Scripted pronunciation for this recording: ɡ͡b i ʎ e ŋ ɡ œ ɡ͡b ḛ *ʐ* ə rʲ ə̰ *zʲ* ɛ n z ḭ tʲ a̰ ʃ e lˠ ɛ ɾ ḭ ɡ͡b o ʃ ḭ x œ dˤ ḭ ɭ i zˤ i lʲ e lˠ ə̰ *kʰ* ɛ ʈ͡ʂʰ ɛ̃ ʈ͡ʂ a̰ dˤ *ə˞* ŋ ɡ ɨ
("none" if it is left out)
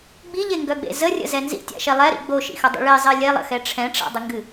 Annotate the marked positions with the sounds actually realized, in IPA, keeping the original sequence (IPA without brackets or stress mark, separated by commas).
z, z, x, ə